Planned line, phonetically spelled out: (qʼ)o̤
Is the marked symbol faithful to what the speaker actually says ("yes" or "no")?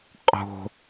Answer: yes